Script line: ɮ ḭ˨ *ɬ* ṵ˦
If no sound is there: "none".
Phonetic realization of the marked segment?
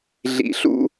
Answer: ɬ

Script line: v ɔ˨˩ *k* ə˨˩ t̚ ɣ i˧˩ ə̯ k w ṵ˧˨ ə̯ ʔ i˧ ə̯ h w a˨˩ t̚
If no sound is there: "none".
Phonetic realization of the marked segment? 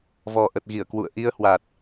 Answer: ʔ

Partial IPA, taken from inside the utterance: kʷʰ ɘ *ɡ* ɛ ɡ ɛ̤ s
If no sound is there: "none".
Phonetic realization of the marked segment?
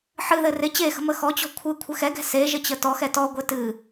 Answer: x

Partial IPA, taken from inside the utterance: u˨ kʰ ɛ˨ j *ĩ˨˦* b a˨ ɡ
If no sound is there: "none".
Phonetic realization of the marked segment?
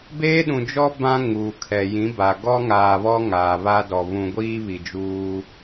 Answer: ĩ˨˦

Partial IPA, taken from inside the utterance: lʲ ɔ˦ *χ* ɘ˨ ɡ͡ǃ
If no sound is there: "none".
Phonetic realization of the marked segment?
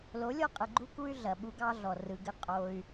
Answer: qʼ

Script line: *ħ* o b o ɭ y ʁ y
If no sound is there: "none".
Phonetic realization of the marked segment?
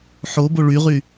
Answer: ħ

